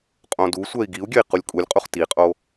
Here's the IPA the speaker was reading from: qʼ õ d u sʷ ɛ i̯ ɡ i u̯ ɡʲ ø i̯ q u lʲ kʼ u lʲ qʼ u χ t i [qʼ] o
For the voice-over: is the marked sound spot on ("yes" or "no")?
yes